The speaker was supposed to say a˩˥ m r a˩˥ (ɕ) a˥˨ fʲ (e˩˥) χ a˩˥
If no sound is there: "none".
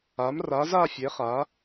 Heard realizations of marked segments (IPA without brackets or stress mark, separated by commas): z, e˩˥